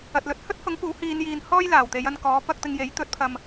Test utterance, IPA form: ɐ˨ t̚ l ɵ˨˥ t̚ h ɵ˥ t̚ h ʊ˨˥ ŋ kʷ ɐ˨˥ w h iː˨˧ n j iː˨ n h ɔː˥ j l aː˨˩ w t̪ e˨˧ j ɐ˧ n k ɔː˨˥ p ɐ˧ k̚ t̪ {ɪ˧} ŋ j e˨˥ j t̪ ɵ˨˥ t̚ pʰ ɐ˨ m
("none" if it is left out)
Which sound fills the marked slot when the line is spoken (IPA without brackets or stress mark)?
ɪ˧